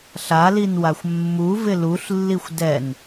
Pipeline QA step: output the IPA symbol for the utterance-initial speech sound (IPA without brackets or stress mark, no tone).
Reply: ɬ